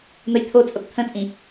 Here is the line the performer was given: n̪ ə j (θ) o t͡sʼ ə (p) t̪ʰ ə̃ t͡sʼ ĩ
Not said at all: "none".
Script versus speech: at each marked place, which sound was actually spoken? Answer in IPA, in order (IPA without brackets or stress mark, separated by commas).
t̪ʰ, p